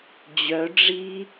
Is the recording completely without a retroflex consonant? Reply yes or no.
no